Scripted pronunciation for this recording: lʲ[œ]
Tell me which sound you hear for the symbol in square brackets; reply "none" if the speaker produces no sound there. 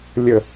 ə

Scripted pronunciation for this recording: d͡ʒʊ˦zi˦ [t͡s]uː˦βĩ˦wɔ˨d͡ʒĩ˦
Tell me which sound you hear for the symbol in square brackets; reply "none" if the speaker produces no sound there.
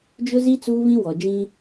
t͡s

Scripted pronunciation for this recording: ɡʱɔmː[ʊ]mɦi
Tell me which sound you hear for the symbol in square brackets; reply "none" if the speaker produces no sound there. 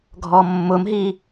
ʊ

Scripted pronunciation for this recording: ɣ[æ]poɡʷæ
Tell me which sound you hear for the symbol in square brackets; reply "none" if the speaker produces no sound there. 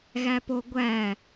æ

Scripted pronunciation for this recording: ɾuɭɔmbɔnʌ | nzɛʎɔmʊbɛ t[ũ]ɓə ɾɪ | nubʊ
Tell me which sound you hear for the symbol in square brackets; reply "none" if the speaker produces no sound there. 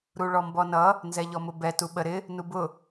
u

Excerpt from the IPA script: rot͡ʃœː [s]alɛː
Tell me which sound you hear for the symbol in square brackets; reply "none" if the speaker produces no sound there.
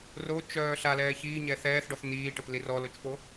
ɬ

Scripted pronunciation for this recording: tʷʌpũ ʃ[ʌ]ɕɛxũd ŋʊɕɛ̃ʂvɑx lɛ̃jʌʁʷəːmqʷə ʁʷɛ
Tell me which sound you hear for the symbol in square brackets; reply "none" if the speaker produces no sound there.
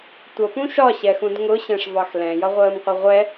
ɒ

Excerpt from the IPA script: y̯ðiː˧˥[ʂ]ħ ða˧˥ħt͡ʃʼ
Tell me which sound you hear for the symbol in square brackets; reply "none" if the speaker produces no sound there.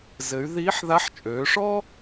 none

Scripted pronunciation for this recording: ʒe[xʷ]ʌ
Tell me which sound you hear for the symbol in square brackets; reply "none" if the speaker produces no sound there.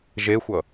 xʷ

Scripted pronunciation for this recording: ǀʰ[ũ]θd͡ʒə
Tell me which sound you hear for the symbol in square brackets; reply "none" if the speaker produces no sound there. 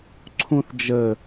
ũ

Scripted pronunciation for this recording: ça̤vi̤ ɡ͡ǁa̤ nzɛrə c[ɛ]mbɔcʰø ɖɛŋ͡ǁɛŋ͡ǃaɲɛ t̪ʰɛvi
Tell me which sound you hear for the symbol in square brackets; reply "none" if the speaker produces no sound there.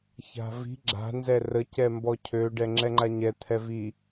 ɛ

